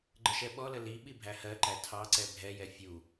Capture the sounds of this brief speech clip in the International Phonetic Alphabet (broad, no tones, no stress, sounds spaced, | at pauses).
ɡ͡ǃ ə ʃ ɛ ɓ ɔ l ə l i ɓ i bʱ æ h ɜ ǃ æ tʰ ɑ ǀ ɛ bʱ ɛ j ɛ fʲ u